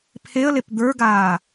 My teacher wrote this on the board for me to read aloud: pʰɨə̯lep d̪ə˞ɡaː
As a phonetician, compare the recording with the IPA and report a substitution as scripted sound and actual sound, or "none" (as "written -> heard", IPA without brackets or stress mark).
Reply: ɨ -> e